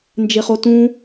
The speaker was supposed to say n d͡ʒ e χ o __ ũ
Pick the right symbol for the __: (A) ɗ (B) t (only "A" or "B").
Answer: B